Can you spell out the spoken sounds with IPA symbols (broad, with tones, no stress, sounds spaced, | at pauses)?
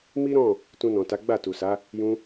m i˦ ɾ ɔ̃˦˨ | t ũ˧ n ɔ̃˨ t a˨˦ ɡ͡b a˦˨ t u˨ s a˨˦ | j ũ˧